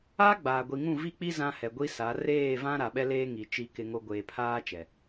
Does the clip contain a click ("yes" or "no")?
no